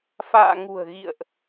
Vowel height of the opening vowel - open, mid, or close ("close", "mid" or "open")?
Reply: open